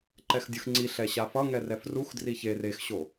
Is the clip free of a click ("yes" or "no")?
no